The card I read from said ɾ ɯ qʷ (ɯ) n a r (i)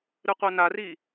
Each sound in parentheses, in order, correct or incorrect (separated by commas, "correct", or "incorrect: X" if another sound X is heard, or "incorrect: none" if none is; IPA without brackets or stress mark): incorrect: ɤ, correct